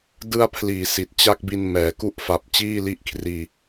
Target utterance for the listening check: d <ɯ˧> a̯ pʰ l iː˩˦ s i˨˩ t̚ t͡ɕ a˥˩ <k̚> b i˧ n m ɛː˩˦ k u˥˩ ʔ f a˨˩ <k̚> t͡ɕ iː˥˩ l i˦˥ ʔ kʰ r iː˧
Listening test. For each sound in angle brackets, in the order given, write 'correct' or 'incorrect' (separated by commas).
incorrect, correct, incorrect